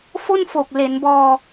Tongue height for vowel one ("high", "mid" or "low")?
mid